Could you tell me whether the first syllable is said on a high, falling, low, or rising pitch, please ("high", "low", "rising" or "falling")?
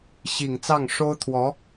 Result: low